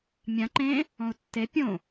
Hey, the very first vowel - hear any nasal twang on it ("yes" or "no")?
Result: yes